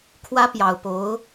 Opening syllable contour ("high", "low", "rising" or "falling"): high